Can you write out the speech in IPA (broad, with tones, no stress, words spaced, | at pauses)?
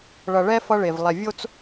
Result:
ɭʌ˨ɭɛ˦ fʌ˦ɭe˨vlˠɛ˨ vʲo˦t͡s